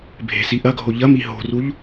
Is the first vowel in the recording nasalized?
no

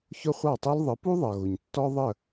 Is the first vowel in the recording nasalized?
no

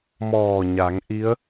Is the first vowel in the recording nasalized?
no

